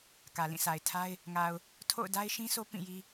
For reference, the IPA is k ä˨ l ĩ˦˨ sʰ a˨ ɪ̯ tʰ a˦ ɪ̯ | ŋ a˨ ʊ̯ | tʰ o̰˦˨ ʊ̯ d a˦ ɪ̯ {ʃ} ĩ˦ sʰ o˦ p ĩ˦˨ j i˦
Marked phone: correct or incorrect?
correct